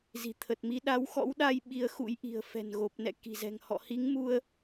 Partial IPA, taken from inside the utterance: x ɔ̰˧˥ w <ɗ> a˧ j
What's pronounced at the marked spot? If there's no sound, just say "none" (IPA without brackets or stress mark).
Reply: ɗ